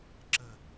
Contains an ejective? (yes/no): no